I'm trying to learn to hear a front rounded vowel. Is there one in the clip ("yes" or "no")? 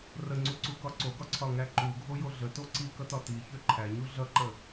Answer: yes